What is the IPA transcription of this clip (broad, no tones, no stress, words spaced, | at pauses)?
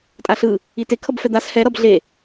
tʼaɬɯ | ite kʰʌbfɛd̪as hɛ ɾʌbɮe